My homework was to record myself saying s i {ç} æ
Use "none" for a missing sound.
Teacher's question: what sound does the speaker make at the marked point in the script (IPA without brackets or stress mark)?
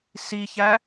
ç